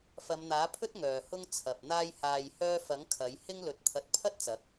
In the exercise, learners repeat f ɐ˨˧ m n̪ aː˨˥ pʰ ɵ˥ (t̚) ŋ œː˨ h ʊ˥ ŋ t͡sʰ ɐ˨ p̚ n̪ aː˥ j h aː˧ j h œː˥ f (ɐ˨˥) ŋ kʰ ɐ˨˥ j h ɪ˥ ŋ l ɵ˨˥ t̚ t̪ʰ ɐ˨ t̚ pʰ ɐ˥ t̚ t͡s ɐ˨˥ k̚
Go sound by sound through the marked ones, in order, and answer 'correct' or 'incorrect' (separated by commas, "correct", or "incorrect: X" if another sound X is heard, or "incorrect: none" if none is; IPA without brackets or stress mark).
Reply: correct, correct